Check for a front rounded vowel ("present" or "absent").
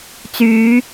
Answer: present